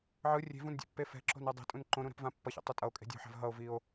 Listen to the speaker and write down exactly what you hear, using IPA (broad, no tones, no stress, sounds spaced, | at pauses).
ʕ ɯ rʲ e̤ v ũ n dʲ a̰ pː e f ɛ̤ ǁ o̤ n ɯ dˤ e̤ tʼ ũ n ǃ õ ɾ ũ ɾ ɛ̤ p v ã pː ʌ ç ḛ tˤ u tʼ ʌ o̯ kʼ e̤ dʲ o̤ ħ a̤ v ɦ ʌ o̯ v i o̯